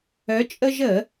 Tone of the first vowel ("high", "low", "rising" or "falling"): rising